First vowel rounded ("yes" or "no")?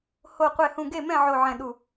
yes